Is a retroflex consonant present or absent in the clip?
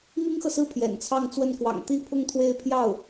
absent